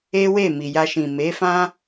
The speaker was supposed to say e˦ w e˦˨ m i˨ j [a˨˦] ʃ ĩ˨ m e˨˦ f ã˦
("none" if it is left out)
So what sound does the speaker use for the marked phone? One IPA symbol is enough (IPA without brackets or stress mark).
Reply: a˧